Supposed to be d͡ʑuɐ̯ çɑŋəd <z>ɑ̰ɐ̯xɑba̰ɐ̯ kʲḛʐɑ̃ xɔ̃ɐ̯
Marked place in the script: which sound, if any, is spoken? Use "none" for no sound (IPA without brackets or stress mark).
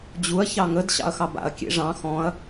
ɕ